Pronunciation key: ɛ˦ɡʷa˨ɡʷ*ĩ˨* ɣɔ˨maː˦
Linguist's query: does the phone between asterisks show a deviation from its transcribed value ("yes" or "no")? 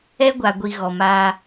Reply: yes